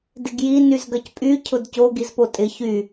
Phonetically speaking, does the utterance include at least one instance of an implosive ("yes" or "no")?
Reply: no